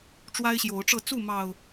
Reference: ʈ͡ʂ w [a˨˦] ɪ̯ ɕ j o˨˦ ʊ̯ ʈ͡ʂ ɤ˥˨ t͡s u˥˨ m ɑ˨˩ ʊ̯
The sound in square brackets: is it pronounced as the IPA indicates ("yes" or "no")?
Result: no